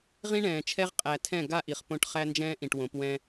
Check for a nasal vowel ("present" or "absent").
present